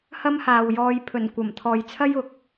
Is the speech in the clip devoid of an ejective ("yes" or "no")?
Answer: yes